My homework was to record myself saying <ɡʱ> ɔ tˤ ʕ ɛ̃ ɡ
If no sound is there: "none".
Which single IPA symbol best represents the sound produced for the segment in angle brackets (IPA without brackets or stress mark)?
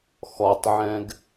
x